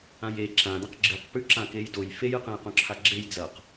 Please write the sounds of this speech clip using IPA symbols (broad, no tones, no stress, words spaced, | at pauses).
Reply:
ãje ǁãdɐ̃q ɡ͡ǁɨqpʉ ǁãkejdoj fejɨqẽj qõǁʰaɡ͡ǁej d͡zɐq